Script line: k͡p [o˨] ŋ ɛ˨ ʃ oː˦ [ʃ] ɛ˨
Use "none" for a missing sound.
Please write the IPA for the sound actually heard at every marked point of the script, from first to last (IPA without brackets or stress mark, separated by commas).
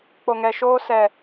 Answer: o˨, s